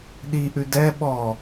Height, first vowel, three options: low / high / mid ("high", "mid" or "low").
high